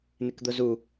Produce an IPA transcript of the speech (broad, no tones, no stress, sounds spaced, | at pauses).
n̪ ɪ k d̪ ʊ z u